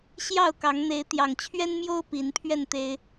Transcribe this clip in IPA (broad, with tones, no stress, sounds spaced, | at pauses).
ɕ j ɑ˥˨ ʊ̯ k ɑ˨˦ ŋ n̪ e˨˦ ɪ̯ t̪ j ɑ˨˩ ŋ t͡ɕʰ ɥ ɛ˦ n m j o˦ ʊ̯ p i˨˦ n pʰ ɥ ɛ˥˨ n t̪ e˦ ɪ̯